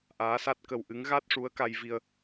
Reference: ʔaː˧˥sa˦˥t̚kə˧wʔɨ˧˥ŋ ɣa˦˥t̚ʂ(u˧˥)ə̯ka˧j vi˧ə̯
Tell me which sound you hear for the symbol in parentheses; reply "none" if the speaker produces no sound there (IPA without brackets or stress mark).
u˧˥